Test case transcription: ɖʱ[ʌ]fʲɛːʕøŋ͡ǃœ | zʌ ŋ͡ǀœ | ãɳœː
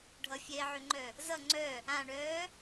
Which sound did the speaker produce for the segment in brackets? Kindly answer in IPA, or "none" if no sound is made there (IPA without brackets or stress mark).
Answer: ʌ